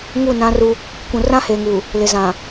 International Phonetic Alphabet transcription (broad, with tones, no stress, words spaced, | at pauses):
ŋu˦˨nã˦ru˦ | kʷũ˨rã˦heː˨ŋuː˨ | lɪ˨zã˨